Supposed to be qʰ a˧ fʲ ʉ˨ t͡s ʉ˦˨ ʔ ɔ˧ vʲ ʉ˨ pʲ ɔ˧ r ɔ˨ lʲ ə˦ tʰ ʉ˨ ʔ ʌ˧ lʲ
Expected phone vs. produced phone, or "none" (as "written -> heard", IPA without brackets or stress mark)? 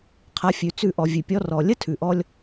ʌ˧ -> ɔ˧